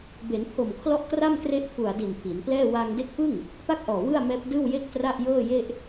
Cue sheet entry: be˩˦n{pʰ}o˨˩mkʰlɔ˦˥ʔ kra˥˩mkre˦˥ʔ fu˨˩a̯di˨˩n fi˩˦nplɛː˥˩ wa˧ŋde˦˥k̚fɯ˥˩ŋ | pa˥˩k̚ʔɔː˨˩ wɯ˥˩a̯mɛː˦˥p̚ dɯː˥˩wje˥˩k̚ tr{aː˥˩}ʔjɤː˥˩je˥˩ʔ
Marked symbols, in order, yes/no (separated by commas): yes, no